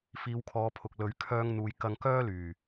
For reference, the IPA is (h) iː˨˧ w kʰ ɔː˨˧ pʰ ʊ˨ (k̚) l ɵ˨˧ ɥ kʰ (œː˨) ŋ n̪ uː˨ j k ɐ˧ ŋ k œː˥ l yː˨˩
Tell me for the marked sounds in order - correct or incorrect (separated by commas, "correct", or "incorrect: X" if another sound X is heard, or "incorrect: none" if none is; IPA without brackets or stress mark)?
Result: incorrect: f, correct, incorrect: œː˧